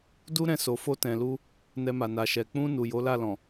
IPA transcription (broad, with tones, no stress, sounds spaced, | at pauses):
d u˦ ɾ ɛ̃˧ s o˨ f o˧ t ɛ̃˨ l u˧ | n ɛ˧ m a˨ n a˨ ʃ ɛ˨ k͡p ũ˧ n u˨ j o˨˦ l a˦˨ l ɔ̃˨